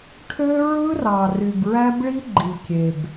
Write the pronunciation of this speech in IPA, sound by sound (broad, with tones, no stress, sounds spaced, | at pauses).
ʈʰ ø˦ ɹ ɯ˦ r ɑ˨ r y˨ b ɹ æ˦ b ɭ i˦ ɡ͡ǃ i˨ kʲ e˨ b